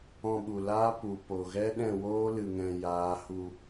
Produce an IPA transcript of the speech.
ɔ̃˧ɓu˨laː˦ pu˨ po˨ɣɛ˦ ɗɛ̃˦˨woː˦ lɨ˨ŋɛ̃˨ jaː˨˦hu˧

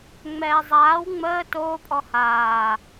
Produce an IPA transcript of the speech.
ŋ͡mɛːzˤaːw ŋ͡məː toːpʼɔ haː

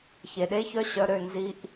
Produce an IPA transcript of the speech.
çe˨ ɗe˦çœ˦ɕœ˧ɾø˦˨ nzi˧ʔ

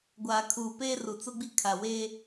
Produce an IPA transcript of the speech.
ɡʷaː˨kʰuː˨peː˦ru˨ t͡sʊ˦ɡ͡bi˦ kʰa˨weː˦

